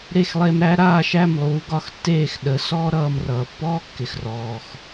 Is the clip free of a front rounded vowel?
yes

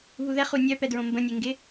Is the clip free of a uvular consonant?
no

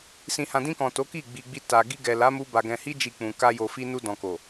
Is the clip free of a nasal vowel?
no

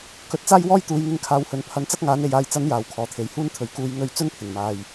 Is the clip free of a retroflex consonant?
yes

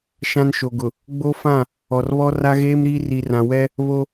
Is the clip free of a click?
yes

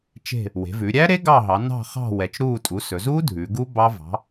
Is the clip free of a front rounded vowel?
yes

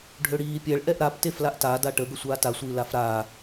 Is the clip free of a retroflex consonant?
no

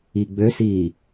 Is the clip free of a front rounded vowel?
no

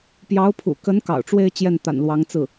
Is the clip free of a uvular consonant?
yes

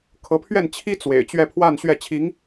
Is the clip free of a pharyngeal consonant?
yes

